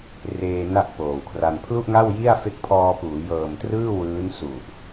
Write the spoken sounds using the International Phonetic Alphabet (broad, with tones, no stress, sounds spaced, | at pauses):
r eː˧ n a˥˩ ʔ p oː˨˩ w kʰ r a˧ n pʰ l u˥˩ ʔ ŋ a˥˩ w j i˥˩ a̯ f e˦˥ k̚ pʰ ɔː˧ p uː˩˦ j ɤː˨˩ m t r ɯː˥˩ w ɯː˦˥ n s u˨˩ ʔ